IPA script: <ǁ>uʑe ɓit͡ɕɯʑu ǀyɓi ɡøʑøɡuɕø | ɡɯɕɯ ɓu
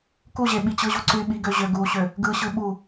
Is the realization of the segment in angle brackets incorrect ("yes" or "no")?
yes